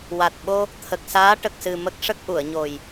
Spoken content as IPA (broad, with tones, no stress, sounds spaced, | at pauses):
w a˨˩ t̚ ɓ o˧ | t̪ʰ ə˨˩ k̚ s aː˧˥ ʈ ə˨˩ k̚ s ɨ˨˩ m ə˦˥ k̚ ʂ ə˦˥ k̚ ʔ u˨˩˨ ə̯ ɲ o˨˩ j